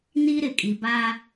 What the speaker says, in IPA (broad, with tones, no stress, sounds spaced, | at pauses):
n i˦ ɾ ɪ˨ kʼ i˨ b a˦